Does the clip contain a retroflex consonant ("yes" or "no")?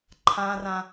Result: no